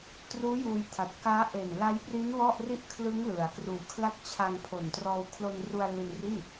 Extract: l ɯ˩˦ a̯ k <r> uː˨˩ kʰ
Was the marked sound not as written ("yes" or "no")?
no